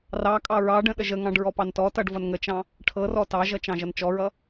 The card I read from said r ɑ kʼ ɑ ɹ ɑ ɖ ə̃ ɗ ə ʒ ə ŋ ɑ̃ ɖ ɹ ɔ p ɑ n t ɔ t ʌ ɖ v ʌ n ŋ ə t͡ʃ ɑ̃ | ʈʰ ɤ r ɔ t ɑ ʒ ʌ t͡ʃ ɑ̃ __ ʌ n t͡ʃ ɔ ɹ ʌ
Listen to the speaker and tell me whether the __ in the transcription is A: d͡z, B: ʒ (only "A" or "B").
B